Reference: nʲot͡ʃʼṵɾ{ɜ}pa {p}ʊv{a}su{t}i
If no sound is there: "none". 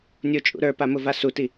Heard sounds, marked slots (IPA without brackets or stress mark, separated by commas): ə˞, m, a, t